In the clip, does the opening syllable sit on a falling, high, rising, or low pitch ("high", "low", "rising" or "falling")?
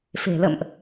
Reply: low